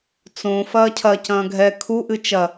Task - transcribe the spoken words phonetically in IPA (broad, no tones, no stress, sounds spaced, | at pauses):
t͡s õ f ɐː cʰ ɐ c ɐ̃ː ɡʱ ɛ kʰ u ʔ ɨ t͡ʃ ɐ